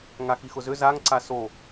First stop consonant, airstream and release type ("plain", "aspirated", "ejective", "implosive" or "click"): click